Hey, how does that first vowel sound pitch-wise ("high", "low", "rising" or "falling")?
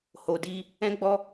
low